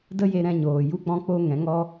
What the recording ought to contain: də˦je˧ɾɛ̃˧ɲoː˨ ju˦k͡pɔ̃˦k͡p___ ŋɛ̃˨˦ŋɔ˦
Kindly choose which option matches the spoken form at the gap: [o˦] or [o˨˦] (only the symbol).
o˦